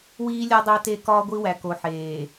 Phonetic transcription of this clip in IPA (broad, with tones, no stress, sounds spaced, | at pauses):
w iː˦ lʲ ɒ˦ dˤ æ˦ t e˦˨ k ɒː˦ ɡʷ i˦ w æ˨ k o˨ ħ eː˨